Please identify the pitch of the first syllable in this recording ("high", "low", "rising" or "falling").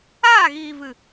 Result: falling